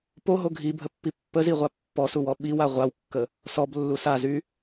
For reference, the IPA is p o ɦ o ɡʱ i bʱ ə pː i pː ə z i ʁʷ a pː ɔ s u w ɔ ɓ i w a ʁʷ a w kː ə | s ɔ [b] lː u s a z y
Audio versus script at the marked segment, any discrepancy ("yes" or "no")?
no